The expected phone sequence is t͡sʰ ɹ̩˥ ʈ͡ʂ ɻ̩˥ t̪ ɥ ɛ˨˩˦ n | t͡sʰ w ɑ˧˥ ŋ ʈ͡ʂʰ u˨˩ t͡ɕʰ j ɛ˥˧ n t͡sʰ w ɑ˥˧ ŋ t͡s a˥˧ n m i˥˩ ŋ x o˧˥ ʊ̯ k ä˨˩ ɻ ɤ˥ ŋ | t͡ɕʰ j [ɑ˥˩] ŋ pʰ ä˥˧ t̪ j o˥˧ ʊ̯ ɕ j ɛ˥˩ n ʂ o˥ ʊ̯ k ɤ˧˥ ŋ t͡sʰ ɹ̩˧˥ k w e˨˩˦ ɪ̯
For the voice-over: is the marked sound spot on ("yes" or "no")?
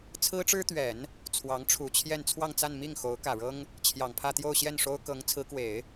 no